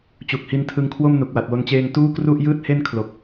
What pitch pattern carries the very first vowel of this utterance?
low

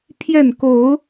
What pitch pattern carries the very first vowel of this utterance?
falling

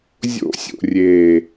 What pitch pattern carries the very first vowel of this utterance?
high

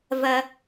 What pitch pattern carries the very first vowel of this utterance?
high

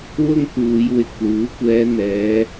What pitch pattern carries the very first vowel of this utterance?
high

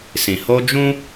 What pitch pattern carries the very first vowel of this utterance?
low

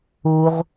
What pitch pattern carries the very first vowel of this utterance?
low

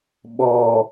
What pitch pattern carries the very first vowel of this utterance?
low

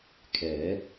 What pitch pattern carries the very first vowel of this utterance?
rising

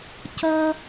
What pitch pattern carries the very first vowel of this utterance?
high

